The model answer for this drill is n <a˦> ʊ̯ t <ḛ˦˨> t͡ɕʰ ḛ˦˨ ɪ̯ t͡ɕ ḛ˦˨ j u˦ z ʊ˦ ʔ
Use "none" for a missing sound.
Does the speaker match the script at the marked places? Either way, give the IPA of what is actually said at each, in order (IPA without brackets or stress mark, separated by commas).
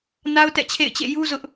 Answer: a˦, ɛ̰˦˨